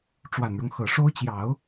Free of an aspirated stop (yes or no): yes